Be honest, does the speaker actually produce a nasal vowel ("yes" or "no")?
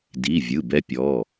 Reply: no